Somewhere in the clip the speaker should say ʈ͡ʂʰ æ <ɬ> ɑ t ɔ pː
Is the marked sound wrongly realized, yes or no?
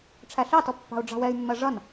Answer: no